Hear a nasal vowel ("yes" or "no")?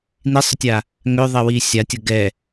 no